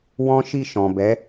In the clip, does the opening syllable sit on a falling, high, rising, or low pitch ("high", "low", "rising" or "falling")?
high